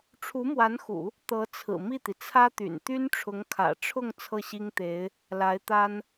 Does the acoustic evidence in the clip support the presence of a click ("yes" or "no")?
no